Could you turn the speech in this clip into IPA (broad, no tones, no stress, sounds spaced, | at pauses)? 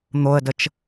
n̪ o ə̯ d ə t͡ʃ